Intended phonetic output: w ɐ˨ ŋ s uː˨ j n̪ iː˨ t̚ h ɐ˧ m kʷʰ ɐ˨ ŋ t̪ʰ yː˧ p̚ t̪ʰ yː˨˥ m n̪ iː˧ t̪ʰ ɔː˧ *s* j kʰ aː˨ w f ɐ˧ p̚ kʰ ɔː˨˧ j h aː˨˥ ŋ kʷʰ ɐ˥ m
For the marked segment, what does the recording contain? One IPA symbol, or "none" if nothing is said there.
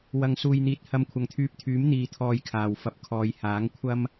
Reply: none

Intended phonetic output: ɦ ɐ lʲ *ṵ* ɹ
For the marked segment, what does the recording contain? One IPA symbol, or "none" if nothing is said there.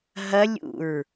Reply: ṵ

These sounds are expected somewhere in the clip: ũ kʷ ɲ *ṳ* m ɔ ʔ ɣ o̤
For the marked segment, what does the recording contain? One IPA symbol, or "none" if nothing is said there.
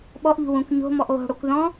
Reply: o̤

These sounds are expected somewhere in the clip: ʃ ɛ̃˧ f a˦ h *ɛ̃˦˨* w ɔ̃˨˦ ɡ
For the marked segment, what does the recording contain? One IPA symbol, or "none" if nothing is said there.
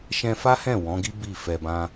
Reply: ɛ̃˦˨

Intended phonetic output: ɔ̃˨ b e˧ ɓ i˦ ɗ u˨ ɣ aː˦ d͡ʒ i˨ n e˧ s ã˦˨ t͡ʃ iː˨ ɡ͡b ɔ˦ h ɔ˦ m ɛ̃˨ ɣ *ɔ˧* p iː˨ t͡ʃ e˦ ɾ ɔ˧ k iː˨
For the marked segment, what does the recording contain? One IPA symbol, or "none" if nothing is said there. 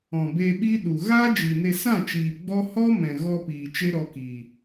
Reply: ɔ˧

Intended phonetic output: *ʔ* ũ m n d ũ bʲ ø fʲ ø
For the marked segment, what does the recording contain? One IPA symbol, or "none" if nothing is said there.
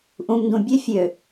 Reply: ʔ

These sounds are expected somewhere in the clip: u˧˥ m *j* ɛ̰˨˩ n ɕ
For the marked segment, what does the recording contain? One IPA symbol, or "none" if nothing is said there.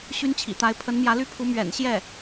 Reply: ɥ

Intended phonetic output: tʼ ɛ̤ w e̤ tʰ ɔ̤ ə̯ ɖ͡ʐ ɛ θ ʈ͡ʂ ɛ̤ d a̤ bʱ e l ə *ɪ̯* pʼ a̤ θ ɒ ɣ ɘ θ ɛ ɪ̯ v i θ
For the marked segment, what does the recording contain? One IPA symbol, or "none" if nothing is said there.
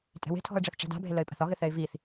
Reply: ɪ̯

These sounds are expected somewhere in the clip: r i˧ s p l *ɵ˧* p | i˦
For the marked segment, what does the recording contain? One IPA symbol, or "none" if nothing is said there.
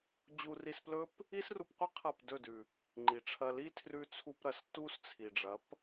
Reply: ɵ˦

